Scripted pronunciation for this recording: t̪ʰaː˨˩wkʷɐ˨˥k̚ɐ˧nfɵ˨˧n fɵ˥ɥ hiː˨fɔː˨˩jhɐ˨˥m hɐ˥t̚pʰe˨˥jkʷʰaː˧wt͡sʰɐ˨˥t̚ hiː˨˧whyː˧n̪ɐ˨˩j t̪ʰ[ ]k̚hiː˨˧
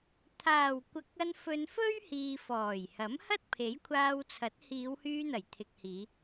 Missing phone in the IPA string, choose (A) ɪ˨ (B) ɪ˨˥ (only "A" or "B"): A